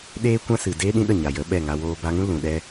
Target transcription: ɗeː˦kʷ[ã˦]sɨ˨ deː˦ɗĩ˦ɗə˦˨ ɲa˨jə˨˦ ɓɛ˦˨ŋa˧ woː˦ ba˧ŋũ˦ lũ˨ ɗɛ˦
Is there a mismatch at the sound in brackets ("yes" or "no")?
no